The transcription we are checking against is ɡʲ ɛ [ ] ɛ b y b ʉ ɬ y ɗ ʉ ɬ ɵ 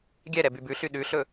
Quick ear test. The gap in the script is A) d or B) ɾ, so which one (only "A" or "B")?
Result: B